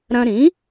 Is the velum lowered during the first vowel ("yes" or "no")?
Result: yes